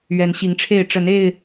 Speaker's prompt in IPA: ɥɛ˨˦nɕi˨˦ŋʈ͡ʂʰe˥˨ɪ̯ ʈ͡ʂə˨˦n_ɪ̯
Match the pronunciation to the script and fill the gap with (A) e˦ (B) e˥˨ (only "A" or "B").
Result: B